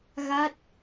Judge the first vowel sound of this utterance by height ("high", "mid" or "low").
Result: low